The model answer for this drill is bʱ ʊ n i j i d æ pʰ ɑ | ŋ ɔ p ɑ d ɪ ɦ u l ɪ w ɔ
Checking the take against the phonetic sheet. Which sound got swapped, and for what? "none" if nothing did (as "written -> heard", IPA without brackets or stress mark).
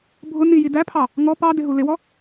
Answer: none